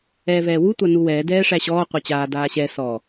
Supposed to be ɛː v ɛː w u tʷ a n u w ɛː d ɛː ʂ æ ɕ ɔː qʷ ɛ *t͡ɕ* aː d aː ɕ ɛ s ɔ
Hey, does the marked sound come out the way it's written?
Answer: yes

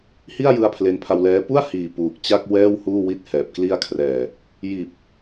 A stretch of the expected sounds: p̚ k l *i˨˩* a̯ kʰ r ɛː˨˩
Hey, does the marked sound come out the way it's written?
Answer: no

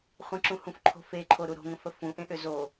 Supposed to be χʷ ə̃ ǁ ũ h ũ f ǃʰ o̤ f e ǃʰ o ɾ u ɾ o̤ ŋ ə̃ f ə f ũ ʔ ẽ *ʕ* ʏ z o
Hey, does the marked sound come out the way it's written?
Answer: no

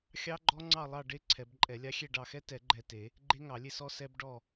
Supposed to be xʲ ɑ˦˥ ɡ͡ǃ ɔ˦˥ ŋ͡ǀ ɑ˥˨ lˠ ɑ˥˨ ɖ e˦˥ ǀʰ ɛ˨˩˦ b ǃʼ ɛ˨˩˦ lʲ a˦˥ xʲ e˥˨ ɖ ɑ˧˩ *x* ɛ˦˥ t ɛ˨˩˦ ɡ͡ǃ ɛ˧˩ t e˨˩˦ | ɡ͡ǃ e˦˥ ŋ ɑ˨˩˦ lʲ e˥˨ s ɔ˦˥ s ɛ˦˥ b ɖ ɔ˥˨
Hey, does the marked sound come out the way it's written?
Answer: yes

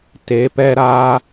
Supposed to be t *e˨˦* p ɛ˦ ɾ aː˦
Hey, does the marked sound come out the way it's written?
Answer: yes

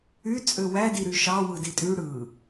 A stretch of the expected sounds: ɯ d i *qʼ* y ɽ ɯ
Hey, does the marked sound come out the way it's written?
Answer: no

